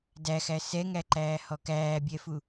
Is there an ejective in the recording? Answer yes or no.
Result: no